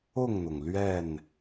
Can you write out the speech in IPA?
ʊ˥˨ŋn̪ʊ˩ŋ lɥɛ˥˨n

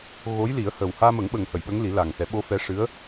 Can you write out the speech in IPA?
ɣo˧˥jli˨˩˦ə̯hə˨˩w haː˧mə˨˩˦ŋɓə˨˩ŋhə˨˩˨j ɓə˧˥ŋli˨˩˦laː˨˩ŋsɛ˨˩˦ ɓo˧˥fɛ˧˥ ʂɨ˧˥ə̯

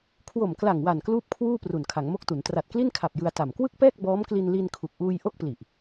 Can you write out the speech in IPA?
kʰwo˨˩mkla˨˩ŋwa˨˩n kluː˥˩p̚kʰwuː˥˩ pru˨˩nkʰa˩˦ŋmo˥˩k̚tu˩˦n tra˨˩t̚kli˥˩nkʰa˨˩p̚ jɯ˧a̯ta˨˩m kwɯ˥˩k̚pɛː˥˩k̚ bɔː˦˥mkli˧nli˧n kʰu˨˩k̚ ʔuː˧jʔo˥˩k̚pli˨˩ʔ

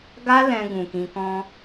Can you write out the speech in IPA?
ɡa˧ lɛ̃˧ɡũ˨kĩ˧kɔ̃˦

